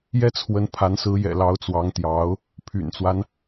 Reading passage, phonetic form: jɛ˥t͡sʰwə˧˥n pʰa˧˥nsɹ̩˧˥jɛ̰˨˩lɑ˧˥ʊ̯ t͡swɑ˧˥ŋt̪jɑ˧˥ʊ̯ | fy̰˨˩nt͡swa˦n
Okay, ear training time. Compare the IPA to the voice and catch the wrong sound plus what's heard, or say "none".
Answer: f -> pʰ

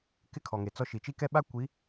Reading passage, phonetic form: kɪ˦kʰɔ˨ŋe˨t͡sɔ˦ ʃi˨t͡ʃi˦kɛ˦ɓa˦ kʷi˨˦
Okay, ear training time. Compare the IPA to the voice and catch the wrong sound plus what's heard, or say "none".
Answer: none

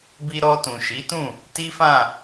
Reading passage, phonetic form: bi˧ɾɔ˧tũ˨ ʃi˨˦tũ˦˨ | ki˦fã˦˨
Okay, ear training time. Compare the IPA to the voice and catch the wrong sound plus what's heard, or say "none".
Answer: k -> t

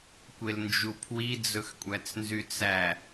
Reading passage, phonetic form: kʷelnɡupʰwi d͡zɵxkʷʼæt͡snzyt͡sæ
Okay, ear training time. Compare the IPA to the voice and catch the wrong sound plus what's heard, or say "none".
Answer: ɡ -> d͡ʒ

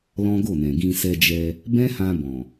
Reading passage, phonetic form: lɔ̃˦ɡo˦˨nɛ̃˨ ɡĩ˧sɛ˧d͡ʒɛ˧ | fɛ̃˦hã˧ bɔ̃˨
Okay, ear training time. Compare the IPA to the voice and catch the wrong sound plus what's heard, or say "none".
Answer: f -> b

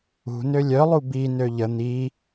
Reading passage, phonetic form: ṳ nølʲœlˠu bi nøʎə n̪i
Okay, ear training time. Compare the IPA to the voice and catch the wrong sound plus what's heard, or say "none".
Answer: none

